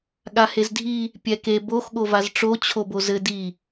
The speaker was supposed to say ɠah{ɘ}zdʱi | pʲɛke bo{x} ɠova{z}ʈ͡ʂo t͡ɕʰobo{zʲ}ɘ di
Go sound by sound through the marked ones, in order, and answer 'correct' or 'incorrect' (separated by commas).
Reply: incorrect, correct, correct, incorrect